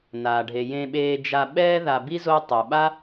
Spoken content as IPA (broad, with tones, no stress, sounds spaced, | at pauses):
n aː˩ ɖʱ e˩ j ẽ˨ ɓ eː˨ d͡ʒ a˨ ɓ ɛː˦ ð a˨ b i˥ z o˦ tˤ o˩ ɓ a˥